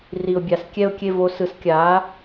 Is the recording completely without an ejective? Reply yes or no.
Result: yes